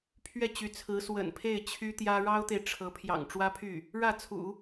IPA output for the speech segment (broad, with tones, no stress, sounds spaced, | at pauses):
pʰ ɥ ɛ˥˩ t͡ɕ y˧˥ t͡sʰ ɹ̩˧˥ s w ə̰˨˩ n pʰ e˥˩ ɪ̯ t͡ɕʰ y˥ t̪ j ä˥ ɻ ɑ˥ ʊ̯ t̪ e˨ ɪ̯ ʈ͡ʂʰ ɤ˧˥ pʰ j ɑ̰˨˩ ŋ ʈ͡ʂ w ä˥ pʰ y˥˩ | ɻ ä˥˩ t͡sʰ ṵ˨˩˦